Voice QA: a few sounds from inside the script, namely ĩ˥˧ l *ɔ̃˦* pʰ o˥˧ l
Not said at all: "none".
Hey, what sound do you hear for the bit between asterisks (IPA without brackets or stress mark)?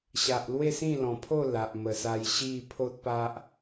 ɔ̃˨˩